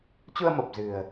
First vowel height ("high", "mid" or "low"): high